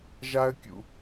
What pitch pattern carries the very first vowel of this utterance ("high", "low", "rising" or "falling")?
high